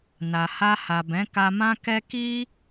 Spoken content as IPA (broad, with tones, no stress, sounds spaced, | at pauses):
n a˨ h a˧ h a˨ b ɛ̃˨˦ k a˧ m ã˦ k ɛ˦ k i˦